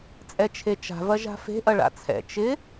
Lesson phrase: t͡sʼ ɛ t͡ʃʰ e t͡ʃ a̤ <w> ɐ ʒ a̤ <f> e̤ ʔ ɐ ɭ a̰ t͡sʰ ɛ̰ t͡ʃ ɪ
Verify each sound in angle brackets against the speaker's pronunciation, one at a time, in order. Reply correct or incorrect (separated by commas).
incorrect, correct